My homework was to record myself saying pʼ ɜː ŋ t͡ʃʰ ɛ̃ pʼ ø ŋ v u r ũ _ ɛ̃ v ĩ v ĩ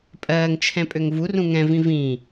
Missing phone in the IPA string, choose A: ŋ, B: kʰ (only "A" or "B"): A